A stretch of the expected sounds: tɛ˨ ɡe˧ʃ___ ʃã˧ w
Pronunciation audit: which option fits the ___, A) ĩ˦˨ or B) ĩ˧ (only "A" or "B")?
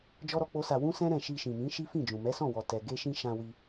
B